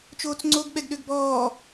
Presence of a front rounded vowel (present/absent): present